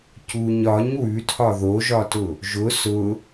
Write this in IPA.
cuɲ ɒɲ wʉtʰɒ ðoʒɒtʊ | ʒʊ sʊ

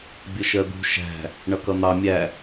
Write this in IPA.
bʲəʃɜd̪ṳ ʃæ̤ | ɳʌkʌn̪ɑ mʲæ

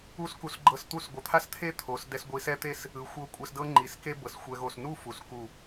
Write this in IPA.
u˥˧sku˧sɡ͡ǃɤ˧s t̪u˥˧s ɡʷɯ˩˧t̪ʰa˥st̪ʰe˥ t̪ʰo˩˧sdɛ˧s ɡʷi˧sɛ˥ t̪e˥˧s | ɯ˩˧xʷɤ˧˩ kʷʼɛ˧sdɤ˥ŋ͡ǃi˩˧ske˥ bɤ˩˧sxʷɛ˧ɣo˧˩s nu˥˧ fu˩˧sku˧˩

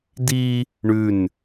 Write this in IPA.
di | ɳʉn

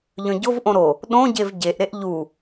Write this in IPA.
ʎœ̃ɟovʔõ ɾo | ɗõɟev ɟeʔɾeʔ ʎu

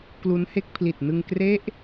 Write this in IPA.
klu˦˥nhe˥˩k̚ pʰli˨˩t̚nɯ˧ŋkre˦˥ʔ

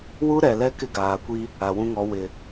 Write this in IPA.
wu˦ɾɛ˨lɛ˦ kɪ˦ɡaː˨kʷi˦ | a˨wũ˦ŋɔ˨˦ wɪ˨

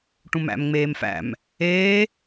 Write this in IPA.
ʈũmæ̰m ŋ͡meːmfæ̰m | eː

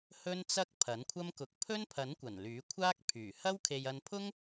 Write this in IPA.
hɵ˥nt͡sɐ˥k̚ pʰɐ˨˥nkʷʰɐ˥mkʊ˧k̚ pʰɵ˥npʰɐ˨˥nkʷɐ˨˩n lyː˨˥kʷʰaː˥k̚ pʰyː˨˩ hɐ˥wkʰe˧j ɐ˧npʰʊ˥ŋ

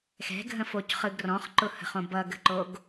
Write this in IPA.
xɛ̤ɡʱə̃focχɯɡ rɔ̃χǃʊhə̤χõ bʌɡə̤ǃoɡ

